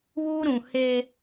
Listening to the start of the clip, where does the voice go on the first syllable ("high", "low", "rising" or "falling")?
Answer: high